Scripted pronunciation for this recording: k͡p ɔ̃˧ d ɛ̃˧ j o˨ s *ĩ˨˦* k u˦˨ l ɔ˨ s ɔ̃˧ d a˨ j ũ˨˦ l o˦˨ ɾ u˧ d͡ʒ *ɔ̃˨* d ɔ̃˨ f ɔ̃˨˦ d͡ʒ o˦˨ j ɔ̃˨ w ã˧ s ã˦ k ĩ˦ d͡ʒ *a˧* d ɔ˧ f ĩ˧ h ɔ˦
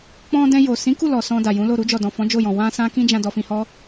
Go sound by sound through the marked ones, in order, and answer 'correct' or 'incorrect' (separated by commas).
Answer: correct, incorrect, incorrect